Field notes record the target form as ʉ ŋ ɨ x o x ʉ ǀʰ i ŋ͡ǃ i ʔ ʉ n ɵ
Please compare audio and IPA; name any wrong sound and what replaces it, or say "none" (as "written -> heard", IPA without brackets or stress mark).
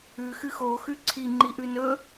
ŋ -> x